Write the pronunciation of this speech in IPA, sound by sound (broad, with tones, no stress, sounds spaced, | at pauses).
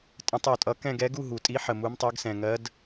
tʼ ə̃˧˥ tˤ u˨˩ tʼ ʌ˧˥ k ɛ̃˥˧ ɡ ɛ˧˥ ɡ u˥˧ ɦ u˨˩ tʼ i˧˥ ħ ə˨˩ m u˧˥ m tˤ ɛ˧˥ ɡ s ɛ̃˨˩ ŋ ɜ˧˥ d